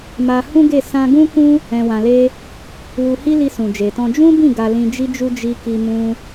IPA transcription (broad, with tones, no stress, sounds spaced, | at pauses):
m a˧ h ũ˦ ɡ e˦˨ s ã˧ ɡ ũ˦ k ũ˦ | ɛ̃˧ w ã˧ l e˦ | w u˧ h i˦ l i˧ s ũ˨ d͡ʒ e˨ t ɔ̃˧ d͡ʒ ũ˦ b ĩ˦˨ ɡ a˧ l ĩ˧ d͡ʒ i˦ d͡ʒ u˦ d͡ʒ i˧ k i˧ m ũ˧